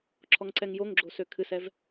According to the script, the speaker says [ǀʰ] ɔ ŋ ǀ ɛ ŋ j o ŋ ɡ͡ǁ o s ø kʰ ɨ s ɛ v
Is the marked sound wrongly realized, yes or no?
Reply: yes